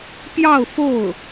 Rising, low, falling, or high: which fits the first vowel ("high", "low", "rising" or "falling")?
falling